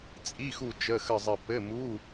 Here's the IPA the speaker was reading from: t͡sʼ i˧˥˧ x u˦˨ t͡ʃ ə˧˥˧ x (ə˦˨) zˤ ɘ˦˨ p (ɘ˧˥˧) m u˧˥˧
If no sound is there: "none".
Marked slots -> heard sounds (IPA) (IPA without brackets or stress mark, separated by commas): ə˦˨, ɘ˧˥˧